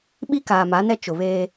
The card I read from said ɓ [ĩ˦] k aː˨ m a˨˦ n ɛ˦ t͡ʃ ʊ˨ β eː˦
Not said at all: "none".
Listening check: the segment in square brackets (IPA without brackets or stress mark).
i˦